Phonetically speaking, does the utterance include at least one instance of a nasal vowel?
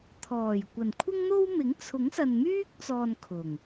no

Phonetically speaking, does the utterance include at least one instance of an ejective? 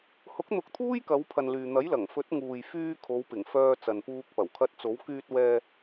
no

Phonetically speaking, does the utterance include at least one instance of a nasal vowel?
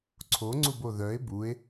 no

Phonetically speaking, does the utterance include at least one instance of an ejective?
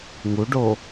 no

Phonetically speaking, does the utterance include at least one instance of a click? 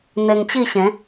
no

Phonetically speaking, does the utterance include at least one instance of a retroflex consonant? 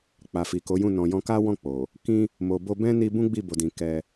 no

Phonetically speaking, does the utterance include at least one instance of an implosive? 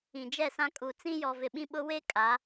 yes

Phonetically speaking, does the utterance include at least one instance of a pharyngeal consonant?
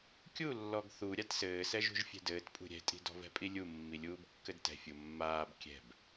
no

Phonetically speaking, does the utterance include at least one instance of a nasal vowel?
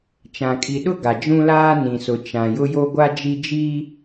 yes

